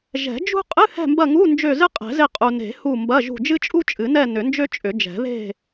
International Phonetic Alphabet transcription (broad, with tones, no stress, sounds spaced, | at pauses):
ʒ ɛ̤˨˩˦ d͡ʒ ṳ˥ qʼ ɨ˧˥˧ h ɛ̤˦˨ m b ɐ˦˨ ŋ u˧˥˧ n d͡ʒ ø˦˨ z ɨ˥ qʼ ɛ̤˨˩˦ z e˦˨ qʼ u˨ n e̤˨˩˦ h u˦˨ m b ɐ˧˥˧ ʒ ṳ˦˨ d͡ʒ ɨ˥ t͡ʃʼ u˥ t͡ʃʼ ɨ˨˩˦ n ɛ˦˨ n ʏ˨˩˦ n d͡ʒ ø˥ t͡ʃʼ ʏ˨˩˦ d͡ʒ ɛ̤˨˩˦ ð e̤˦˨